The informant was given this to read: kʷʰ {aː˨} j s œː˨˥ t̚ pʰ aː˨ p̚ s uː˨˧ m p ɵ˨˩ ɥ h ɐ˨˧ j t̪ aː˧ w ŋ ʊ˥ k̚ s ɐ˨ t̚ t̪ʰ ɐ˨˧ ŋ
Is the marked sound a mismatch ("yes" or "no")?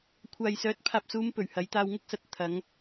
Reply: no